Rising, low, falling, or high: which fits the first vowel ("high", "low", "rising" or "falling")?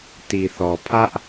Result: low